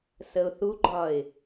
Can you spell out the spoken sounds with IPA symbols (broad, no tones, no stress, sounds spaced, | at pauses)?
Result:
s ə ʊ̯ θ u ɡ͡ǃ ɒ ɪ̯